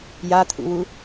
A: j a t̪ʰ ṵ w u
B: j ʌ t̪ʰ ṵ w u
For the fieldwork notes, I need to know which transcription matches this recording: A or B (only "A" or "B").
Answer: A